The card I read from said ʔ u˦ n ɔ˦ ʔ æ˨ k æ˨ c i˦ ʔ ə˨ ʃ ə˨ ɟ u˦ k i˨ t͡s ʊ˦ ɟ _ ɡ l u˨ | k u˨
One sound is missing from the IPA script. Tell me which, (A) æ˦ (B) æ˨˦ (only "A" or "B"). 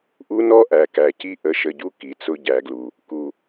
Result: B